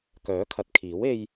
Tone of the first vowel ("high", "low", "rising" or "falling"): rising